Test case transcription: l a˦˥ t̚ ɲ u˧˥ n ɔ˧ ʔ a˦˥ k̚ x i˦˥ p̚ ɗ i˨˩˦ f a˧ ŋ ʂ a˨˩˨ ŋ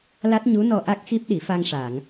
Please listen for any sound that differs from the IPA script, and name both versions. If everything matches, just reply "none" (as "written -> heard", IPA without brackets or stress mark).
none